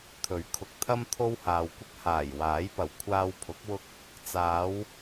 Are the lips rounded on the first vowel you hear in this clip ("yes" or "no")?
yes